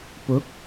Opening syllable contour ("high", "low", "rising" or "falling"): rising